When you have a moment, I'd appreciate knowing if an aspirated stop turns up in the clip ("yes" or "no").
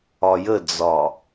no